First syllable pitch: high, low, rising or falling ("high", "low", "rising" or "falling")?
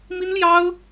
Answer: high